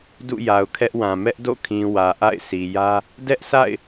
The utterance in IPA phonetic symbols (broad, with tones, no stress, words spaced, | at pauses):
dṵ˦˨ja˨ʊ̯kʰɛ˦ʔwã˨ mɛ˦ʔdo̰˦˨kʰĩ˨ wä˨ʔa̰˦˨ɪ̯si˨jä˦ | dɛ˦ʔsa̰˦˨ɪ̯